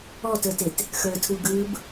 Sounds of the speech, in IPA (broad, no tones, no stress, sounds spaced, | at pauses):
ɔ t ə˞ t e t | x ə˞ tʰ u ɡ ɯ b